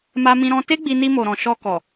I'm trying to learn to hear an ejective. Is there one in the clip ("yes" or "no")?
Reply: no